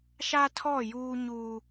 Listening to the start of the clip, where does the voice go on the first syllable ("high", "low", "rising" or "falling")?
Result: high